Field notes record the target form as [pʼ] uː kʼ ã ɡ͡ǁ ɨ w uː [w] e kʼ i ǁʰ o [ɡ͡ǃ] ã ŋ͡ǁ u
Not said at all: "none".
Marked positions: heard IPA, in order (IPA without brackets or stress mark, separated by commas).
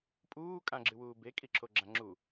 pʼ, b, ɡ͡ǁ